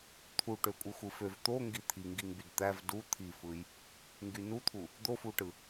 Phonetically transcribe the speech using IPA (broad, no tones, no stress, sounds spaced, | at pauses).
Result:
t̪ʰ u ʈ ø kʷʼ ɯ xʷ ɯ f ø v t̪ o ŋ ɡ i t̪ʰ i ŋ ɡ i ŋ b y d t̪ æ v d u t̪ʰ i f ɯ j | ŋ ɡ y n u t̪ʰ u | d̪ o f u ʈ ɯ